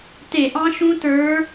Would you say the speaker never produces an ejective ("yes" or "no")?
yes